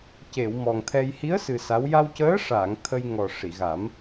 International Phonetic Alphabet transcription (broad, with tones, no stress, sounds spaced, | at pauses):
c e˨˩˨ w m ɔ˨˩ ŋ t̪ʰ ɛ˧ j h i˧˥ ə̯ s ɨ˨˩ s a˧˥ w j a˧ w c əː˧˥ ʂ aː˨˩˨ ŋ t̪ʰ ə˧ j ŋ ɔ˨˩ ʂ i˨˩˨ ɣ a˨˩˦ m